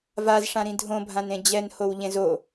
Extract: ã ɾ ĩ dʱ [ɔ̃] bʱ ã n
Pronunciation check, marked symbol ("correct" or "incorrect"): incorrect